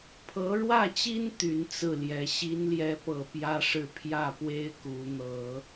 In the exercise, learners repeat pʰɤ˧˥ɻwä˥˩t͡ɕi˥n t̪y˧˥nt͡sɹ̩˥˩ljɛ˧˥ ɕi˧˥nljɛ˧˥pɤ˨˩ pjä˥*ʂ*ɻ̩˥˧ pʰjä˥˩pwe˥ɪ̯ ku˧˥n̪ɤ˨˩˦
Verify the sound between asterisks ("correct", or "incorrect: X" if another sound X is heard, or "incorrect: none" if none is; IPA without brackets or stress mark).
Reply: correct